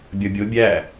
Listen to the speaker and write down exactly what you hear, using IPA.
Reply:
bʲʌbʲʊ bʲæ

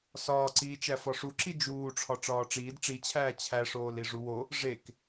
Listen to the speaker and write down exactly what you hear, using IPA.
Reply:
sɒːǀiːt͡ʃæ fɒʂuǁi d͡ʒuːʈ͡ʂʰɒ ʈ͡ʂɒːʈ͡ʂiːd ʈ͡ʂit͡ɕʰæː t͡ɕʰæʂoːl iʐuwo | ʐek

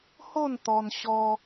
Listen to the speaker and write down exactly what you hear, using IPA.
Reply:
ho˥˧nt̪ɔ˧n ɕɔ˦

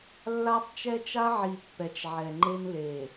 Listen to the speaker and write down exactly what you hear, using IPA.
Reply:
lːa˦tˤ t͡ʃɛ˦t͡ʃa˦ʕi˨ pːɛ˨t͡ʃʕɛ˨ ŋ͡ǃe˦nle˨

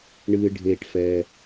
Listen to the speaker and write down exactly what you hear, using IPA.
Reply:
ɳɨː˩ ɖʱeː˩ʈfɛː˩

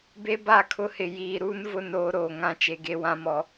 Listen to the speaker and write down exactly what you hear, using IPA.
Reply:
be˦ba˦˨kʰʊ˦hɪ˨ jiː˨ɾuː˦nvʊ˦˨n oː˦ɾoː˨ŋã˦ t͡ʃe˨ɡe˦wã˦mɔ˨

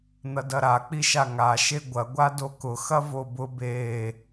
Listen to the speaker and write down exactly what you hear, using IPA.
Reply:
n̪ɐdɐɾa k͡piʃaŋa ʃeɡʷɐ ɡʷadokʊ xɐvobʊ be

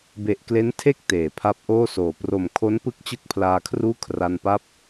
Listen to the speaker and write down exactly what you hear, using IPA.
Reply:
be˨˩ʔkle˦˥ntʰe˥˩k̚ teː˩˦pʰa˦˥p̚ʔoː˥˩soː˨˩ pro˨˩mkʰo˦˥npɯ˦˥k̚ t͡ɕɯ˥˩k̚pʰlaː˧kʰruː˥˩ kʰra˧npa˥˩p̚

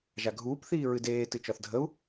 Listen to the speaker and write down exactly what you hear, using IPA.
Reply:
ʒaɡʱuːp θiːɹɨdeː tɨt͡ʃɒθdʱəu̯

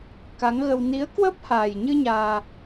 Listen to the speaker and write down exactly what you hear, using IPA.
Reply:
ka˨˦ŋɣə˧w ni˨˦ə̯ kwə˦˥p̚ha˨˩jɲɨ˧ ɲaː˧

